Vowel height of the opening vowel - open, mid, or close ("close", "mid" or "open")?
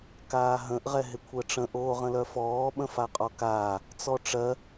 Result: open